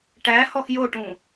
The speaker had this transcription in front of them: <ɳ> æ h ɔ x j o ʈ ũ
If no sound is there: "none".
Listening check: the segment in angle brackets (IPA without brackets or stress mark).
ʈ